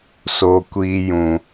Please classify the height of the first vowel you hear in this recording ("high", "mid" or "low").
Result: mid